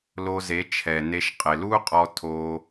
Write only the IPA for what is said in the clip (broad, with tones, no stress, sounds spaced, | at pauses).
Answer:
l o˧ z e˨˦ t͡ʃʰ ɛ˨ n e˧ ʃ qʼ ɪ˨ l u˦ qʼ ɔ˧ tʰ o˧